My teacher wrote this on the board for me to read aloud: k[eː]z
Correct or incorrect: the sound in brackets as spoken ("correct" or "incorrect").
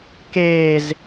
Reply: correct